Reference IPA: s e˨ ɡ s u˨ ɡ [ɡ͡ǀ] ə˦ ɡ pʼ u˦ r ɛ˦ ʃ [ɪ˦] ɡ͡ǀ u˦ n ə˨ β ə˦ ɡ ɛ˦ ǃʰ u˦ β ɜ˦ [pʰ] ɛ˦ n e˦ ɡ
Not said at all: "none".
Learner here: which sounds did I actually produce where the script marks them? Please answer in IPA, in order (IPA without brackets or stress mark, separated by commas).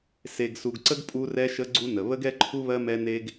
ǀ, ə˦, m